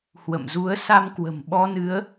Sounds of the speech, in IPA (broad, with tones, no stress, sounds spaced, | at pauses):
h w ə̰˧˨ m z u˨˦ ə̯ s a˧ m k w ə̤˨˩ m ɓ ɔ˧ n ɨ˨˦ ə̯